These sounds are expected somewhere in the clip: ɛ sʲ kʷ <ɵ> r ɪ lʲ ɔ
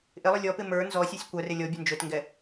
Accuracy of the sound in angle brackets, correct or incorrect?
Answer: incorrect